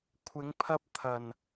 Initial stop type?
aspirated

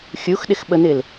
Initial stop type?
implosive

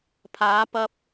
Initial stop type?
aspirated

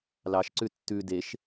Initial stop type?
click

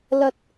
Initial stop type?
plain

